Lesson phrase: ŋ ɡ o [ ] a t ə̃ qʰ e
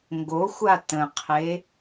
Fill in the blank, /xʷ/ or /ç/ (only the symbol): xʷ